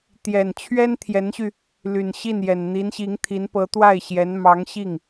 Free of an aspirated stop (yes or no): no